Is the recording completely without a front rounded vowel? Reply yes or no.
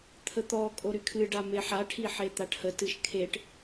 no